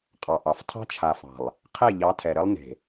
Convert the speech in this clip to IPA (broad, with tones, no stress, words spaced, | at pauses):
qʼɑ˨ʔɑ˨f tʰɑ̤˦t͡ʃʰa˨fɑ̤˨lˠ | qʰe˦˨ʎɑ˨˦tʰɛ˨ɾɘ˦lˠ ne̤˨